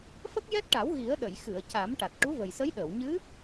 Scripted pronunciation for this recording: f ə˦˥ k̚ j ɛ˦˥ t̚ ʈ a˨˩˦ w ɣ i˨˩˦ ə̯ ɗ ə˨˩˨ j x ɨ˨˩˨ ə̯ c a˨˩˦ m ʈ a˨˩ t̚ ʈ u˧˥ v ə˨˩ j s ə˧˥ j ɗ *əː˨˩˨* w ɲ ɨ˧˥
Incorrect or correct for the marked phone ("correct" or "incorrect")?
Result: correct